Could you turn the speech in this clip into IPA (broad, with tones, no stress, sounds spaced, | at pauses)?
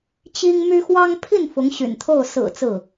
t͡ɕ i˥ ŋ m y˥ x w ɑ˥ ŋ pʰ i˥˩ n f ʊ˧˥ ŋ ɕ y̰˨˩ n t̪ʰ o˥˩ ʊ̯ s ɹ̩˨˩ t͡s ɹ̩˥˩